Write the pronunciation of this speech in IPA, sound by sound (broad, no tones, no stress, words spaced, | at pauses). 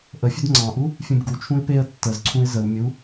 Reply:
ʔəfʲɵd ŋ͡ǀɑ̃ʔu | fʲũbɡut͡ʃʰũɪ̯ peə̯ tːəzǀʰũɪ̯ zəw mʲu